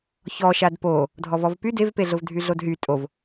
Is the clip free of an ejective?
no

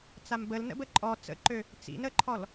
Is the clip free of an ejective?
no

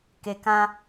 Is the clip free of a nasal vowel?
no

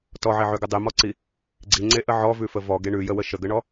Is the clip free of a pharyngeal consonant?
no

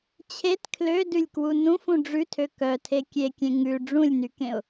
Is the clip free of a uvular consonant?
yes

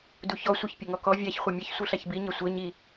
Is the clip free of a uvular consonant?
no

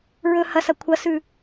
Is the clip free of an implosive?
yes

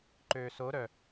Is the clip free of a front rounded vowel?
no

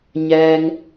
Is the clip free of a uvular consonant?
yes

